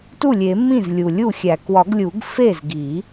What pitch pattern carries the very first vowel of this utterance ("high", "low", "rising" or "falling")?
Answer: falling